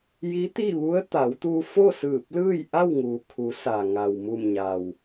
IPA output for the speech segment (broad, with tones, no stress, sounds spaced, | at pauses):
j i˧˥ t̪ i˥˨ ʋ u˧˥ ə̯ t̪ a˩˧ w t̪ uː˧ f o˥˨ s ɯː˧˩ p̚ l ɯː˥˨ j ʔ a˥˨ w ŋ uː˩ kʰ u˩˧ s a˩ ŋ a˩ w m u˧˩ m ɲ a˩ w